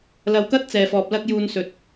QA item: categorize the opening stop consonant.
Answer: plain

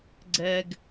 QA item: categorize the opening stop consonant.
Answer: click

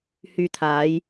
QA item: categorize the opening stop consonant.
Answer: aspirated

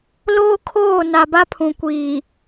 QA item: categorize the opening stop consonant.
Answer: aspirated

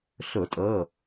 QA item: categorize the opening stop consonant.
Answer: ejective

